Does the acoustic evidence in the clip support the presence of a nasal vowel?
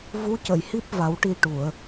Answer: no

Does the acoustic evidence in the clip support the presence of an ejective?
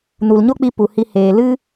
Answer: no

